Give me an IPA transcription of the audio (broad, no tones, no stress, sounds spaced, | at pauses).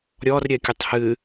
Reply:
ɾʲ ɔ r ɾʲ ɛ kʲ ɨ tˤ h ɨ